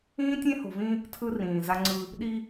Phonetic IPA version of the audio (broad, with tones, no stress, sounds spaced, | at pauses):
ĩː˦ tʲ ẽ˦ h o̤˨ v ĩ˦ | tʰ ɯ˦ r ĩː˨ z a˦ ŋ͡ǀ ɯ˦ | ɗ i˦